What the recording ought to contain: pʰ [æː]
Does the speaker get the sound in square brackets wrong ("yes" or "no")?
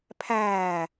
no